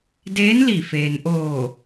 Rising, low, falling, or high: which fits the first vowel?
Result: rising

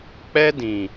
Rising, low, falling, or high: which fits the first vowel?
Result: high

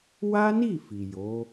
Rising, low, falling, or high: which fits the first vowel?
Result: high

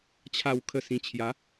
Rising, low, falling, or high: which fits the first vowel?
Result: low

